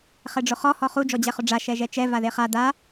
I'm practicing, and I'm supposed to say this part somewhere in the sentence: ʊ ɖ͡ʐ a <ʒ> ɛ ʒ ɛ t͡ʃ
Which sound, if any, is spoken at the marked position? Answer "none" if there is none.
ʃ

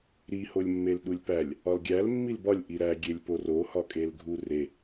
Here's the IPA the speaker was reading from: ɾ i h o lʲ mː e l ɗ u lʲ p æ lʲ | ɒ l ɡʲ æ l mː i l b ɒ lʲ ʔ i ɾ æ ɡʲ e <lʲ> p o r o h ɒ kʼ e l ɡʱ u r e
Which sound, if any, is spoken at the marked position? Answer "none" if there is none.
lʲ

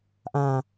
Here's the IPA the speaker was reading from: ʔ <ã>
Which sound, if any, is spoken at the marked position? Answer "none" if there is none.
ãː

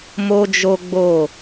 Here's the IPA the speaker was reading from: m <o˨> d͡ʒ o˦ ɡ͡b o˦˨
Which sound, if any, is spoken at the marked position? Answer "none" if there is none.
o˦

